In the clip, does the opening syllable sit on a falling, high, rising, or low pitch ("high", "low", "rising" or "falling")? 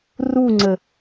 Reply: falling